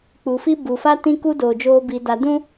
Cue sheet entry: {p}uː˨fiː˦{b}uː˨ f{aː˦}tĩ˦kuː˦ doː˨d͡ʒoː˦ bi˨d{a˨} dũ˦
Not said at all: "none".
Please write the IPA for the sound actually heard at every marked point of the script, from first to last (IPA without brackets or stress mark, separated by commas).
k͡p, b, a˦, a˨